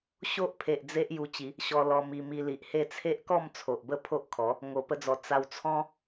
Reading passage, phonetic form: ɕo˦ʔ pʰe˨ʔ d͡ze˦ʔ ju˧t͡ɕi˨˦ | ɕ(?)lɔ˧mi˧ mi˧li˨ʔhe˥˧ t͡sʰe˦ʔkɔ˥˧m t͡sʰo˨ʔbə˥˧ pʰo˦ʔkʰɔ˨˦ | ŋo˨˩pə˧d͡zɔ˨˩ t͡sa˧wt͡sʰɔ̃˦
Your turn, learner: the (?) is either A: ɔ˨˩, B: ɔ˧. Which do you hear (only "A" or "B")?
B